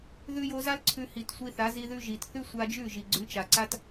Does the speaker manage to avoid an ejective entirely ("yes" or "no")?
yes